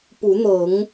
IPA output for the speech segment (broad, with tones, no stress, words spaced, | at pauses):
pu˨˦n̪ɤ˨˦ŋ